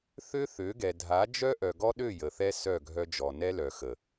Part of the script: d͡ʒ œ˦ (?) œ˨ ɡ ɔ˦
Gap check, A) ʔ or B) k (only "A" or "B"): A